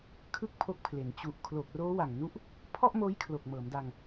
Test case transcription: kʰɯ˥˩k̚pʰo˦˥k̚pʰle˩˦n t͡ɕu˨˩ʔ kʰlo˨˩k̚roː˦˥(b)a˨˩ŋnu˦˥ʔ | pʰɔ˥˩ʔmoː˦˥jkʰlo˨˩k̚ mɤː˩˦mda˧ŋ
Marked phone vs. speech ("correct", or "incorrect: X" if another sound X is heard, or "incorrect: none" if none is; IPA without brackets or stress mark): incorrect: w